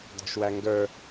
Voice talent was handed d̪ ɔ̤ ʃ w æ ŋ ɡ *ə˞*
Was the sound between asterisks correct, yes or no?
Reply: yes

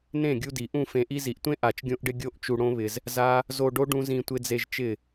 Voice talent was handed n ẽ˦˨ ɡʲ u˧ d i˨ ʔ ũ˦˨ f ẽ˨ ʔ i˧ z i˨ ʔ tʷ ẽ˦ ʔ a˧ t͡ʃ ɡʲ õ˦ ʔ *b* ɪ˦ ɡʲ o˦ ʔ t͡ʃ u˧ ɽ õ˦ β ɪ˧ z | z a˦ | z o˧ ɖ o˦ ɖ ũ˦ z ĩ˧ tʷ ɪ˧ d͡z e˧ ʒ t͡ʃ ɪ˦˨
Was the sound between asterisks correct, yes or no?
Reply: no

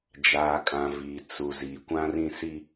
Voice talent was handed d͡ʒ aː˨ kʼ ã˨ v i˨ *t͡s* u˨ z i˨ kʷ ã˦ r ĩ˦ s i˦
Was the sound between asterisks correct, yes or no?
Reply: yes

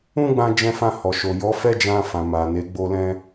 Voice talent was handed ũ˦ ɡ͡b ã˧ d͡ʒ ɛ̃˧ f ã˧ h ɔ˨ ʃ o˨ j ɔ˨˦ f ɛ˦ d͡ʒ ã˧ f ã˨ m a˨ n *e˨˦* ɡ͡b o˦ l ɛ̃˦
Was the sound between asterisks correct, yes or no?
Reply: yes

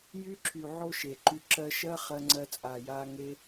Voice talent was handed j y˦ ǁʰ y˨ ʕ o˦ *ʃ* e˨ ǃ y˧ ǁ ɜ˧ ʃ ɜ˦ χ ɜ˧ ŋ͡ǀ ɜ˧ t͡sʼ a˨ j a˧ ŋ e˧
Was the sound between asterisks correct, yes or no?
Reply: yes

